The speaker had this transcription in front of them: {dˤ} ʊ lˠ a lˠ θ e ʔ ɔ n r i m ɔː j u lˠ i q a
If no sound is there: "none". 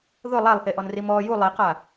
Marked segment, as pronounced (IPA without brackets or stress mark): ð